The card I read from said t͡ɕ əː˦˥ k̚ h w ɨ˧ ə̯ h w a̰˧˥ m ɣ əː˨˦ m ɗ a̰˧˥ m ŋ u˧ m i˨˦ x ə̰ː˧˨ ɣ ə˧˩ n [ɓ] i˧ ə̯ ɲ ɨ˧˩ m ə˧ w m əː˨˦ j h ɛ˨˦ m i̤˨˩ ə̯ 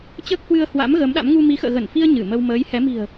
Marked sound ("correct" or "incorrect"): incorrect